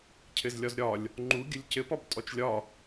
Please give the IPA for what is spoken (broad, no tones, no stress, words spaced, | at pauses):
cʰɘzlʲɒzɾʲɒlʲ | ŋ͡ǃuɡʲəlʲ cɘpɒb tʼɔt͡ʃlʲɒ